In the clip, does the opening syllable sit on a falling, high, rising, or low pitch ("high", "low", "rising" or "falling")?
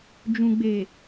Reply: low